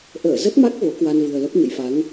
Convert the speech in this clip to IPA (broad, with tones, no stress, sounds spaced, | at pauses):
ʔ əː˧˩ z ə˦˥ t̚ m a˦˥ k̚ v o˨˦ k w a˧ n v ɨ˨˩ ə̯ l ə˦˥ p̚ ɲ ə̰˧˨ j f a˨˦ ŋ